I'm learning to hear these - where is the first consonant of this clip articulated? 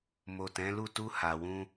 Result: lips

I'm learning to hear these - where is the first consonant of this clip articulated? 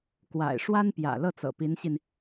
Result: velum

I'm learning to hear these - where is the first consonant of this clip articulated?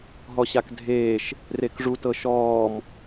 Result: throat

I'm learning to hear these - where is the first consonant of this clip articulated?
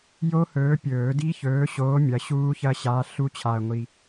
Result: palate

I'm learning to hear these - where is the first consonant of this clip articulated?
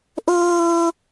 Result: throat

